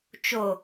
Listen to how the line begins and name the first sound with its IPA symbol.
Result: t͡ʃ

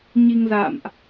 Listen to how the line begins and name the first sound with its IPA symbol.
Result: ɲ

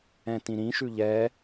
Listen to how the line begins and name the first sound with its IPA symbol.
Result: ɛ̃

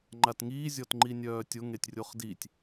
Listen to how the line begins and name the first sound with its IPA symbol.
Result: ŋ͡ǃ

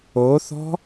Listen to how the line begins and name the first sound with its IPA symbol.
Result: o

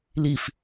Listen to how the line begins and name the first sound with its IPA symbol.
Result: l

